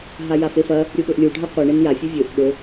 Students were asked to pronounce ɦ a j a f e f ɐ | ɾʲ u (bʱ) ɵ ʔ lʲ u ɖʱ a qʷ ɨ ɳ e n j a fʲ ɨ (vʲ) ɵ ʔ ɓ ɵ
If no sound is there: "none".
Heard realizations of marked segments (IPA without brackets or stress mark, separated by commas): ɓ, vʲ